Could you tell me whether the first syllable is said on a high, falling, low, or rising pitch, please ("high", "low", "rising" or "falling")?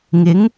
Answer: rising